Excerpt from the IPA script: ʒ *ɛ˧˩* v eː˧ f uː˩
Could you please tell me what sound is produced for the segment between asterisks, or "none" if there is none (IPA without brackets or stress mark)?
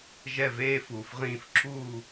ɛ˧˩